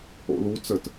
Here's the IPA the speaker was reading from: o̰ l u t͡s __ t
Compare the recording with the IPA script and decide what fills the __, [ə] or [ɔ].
ə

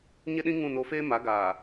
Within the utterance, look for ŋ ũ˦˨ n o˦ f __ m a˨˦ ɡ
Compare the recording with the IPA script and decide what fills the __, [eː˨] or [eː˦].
eː˦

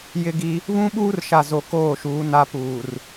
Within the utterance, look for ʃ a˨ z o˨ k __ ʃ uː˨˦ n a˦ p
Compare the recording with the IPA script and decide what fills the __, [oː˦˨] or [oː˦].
oː˦˨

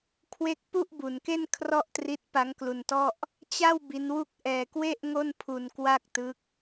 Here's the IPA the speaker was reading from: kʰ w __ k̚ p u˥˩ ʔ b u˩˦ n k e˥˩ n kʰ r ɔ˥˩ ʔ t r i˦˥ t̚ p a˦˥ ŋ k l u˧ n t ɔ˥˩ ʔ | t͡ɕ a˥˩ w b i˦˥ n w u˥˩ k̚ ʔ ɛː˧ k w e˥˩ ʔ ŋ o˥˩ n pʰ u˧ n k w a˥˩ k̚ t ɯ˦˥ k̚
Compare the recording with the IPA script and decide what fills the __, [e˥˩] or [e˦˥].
e˦˥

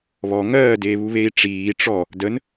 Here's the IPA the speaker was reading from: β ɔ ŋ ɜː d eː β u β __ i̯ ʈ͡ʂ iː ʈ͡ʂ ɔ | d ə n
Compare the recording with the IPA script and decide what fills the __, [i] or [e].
e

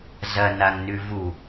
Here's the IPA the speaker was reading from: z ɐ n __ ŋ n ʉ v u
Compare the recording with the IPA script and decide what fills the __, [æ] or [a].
a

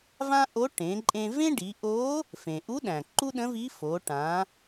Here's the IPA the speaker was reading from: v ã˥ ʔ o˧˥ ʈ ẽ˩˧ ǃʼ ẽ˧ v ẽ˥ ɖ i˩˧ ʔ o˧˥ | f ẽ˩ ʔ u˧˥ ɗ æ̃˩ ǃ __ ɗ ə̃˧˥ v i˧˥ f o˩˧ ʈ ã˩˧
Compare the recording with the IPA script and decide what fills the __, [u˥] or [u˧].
u˥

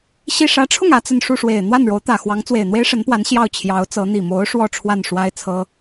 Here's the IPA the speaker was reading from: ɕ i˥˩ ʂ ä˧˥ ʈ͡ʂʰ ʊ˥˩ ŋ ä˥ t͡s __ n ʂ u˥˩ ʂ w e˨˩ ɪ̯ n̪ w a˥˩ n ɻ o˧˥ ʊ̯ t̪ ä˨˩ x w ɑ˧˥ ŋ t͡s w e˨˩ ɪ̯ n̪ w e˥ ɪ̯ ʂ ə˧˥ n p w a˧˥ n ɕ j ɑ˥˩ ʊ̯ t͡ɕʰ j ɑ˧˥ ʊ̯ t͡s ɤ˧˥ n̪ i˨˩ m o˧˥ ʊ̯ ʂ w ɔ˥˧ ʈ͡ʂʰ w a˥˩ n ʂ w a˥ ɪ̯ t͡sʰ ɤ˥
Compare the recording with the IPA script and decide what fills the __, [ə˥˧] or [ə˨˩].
ə˥˧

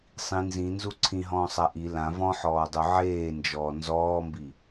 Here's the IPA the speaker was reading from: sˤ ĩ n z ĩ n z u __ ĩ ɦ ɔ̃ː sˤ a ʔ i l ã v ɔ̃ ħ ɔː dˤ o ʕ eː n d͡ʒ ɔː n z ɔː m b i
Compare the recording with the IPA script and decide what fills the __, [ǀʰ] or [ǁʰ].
ǀʰ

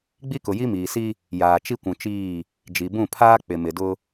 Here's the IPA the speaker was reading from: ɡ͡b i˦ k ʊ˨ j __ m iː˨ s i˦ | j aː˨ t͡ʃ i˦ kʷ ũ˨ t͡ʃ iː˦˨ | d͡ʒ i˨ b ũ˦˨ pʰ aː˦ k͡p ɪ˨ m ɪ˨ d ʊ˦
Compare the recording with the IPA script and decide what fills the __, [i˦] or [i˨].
i˦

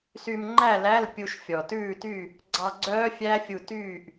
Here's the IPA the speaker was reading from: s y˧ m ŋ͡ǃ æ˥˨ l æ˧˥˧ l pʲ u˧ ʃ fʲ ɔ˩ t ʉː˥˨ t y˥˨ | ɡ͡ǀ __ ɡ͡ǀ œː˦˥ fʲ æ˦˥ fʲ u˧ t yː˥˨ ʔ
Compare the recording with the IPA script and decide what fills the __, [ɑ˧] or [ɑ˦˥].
ɑ˧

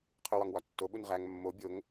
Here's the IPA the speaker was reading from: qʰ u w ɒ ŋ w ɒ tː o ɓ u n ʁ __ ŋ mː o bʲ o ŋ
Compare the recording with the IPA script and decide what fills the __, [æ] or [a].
æ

